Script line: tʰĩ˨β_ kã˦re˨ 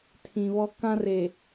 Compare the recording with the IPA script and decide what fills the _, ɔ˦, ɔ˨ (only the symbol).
ɔ˦